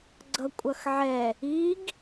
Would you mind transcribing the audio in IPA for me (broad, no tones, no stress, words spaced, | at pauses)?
ɡ͡ǀʌkʷʼʌxʕɛ | iɡ